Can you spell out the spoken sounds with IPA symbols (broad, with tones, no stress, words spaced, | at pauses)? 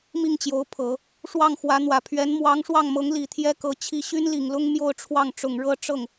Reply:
mi˥˩ŋt͡ɕjo˧˥ʊ̯pʰɤ˨˩˦ | ʂwɑ˥˩ŋ xwä˧˥n̪wä˨˩ pʰɥɛ˧˥nmwɑ˧˥ŋʂwɑ˥˩ŋmɤ˧˥ŋ li˨˩t̪ʰjɛ˥kɤ˧˥ t͡ɕʰi˥˩ ɕy˥nli˨˩ŋlʊ˥ŋ mjo˥˧ʊ̯ʈ͡ʂʰwɑ˥˩ŋ ʈ͡ʂʊ˨˩ŋɻɤ˥ ʈ͡ʂɤ˥˩ŋ